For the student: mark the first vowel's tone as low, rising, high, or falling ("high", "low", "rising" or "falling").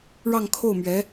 falling